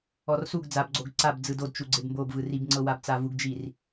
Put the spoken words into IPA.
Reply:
ɔ r s u ɡ d͡z a b ɡ͡ǀ o ɡ ǀ a b d͡z ɯ d o d t͡ʃ u ɡ͡ǀ e b m b o b v ɯ r i b ŋ͡ǀ ɤ w a b t͡s a v u ɡ d͡ʒ i r

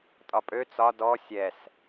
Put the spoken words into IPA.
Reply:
tʼ ɒ pʼ ø t͡s ɒ d ɔ sʲ ɛ s

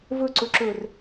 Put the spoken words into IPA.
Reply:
v ɵ ǀ ɵ ǁ ɵ r

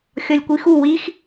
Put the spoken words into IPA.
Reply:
xʲ ɒ lʲ kʷ i x u w i x

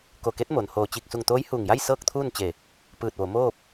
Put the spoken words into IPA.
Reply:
k o˧˩ k e˧˥ t̚ m o˩ n h oː˧˩ t͡ɕ iː˧˩ k̚ s u˧˩ ŋ t̪ oː˧˥ j h uː˧˩ ŋ j a˥˨ j s ɤː˥˨ k̚ t̪ʰ uː˥˨ n t͡ɕ e˧˩ | p ɯː˧˩ t̚ ʋ o˩˧ m oː˥˨ p̚

